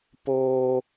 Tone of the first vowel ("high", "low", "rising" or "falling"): high